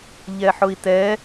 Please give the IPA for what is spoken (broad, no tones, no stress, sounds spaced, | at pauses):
ʎ ɛ ħ ʊ i̯ t ɛ